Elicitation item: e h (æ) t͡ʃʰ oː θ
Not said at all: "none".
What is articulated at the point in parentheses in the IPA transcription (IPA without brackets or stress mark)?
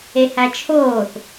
æ